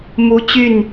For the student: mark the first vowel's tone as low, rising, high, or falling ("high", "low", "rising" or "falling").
high